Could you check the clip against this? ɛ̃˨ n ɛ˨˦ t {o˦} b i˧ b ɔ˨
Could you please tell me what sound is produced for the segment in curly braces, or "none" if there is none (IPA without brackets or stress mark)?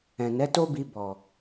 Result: o˦